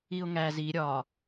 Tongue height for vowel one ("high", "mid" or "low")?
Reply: high